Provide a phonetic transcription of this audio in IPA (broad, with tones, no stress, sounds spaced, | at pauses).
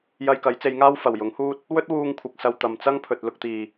j ɐ˧ j k ɐ˨˥ j t͡s e˨˧ j ŋ aː˥ w f ɐ˨˩ w j ʊ˨˥ ŋ h uː˥ t̚ | w ɵ˥ t̚ w uː˧ ŋ kʷʰ ɪ˨ k̚ s ɐ˧ w t̪ ɐ˨ m t͡s ɐ˥ ŋ pʰ ɵ˨ t̚ l ʊ˧ k̚ t̪ iː˨